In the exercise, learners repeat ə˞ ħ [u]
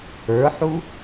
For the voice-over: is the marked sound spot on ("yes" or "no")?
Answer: yes